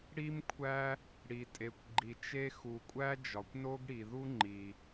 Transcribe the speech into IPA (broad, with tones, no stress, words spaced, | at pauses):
ɽi˥mkʷʰæ˥ | ɽi˩tʼe˩kʷɡ͡ǃi˩t͡ʃe˥ xu˩kʷʼæ˥ d͡ʒɒ˩kʷno˥ɡɽi˩ ðu˥ŋ͡ǃi˩